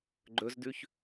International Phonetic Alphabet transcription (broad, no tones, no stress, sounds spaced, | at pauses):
ɡ͡ǃ ɵ z d ʉ ç